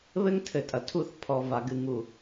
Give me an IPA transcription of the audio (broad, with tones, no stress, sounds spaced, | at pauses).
β ɘ˦ ŋ tʰ ɘ˨ tʼ ɐ˨ tʰ u˦˨ θ pʰ ɔ˨ v a˨ ɡ ɨ˨ ŋ u˨